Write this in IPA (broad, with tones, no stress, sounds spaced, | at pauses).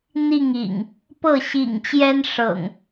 n̪ i˥˨ ŋ ḭ˨˩ ŋ | p ɤ˥˨ ɕ ḭ˨˩ ŋ t͡ɕ j ɛ˦ n ʂ ɤ̰˨˩ ŋ